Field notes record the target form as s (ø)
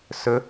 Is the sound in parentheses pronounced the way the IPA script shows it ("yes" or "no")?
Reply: no